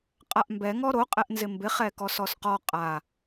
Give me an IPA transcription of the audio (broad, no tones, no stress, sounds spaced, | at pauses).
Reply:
qʼ a ʔ m b ɛ ŋ ɔ ɾ o qʼ ɛ ʔ n z ɪ m b ɪ χ ɛ k ɔ s ɔ s q ɔ qʼ a